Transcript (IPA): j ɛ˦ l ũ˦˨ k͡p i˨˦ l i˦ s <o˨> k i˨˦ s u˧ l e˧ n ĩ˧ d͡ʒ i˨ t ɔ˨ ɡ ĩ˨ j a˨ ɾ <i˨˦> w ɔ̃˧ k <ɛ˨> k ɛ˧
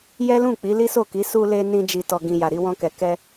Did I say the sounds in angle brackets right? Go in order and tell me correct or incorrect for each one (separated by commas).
incorrect, incorrect, correct